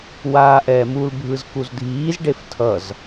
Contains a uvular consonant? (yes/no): no